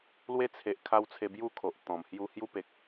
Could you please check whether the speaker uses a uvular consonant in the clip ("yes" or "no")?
no